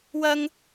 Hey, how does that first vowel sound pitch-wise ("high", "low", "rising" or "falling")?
high